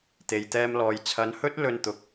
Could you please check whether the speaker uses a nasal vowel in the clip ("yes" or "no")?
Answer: no